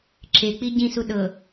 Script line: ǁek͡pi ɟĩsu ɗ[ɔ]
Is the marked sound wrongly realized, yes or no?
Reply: yes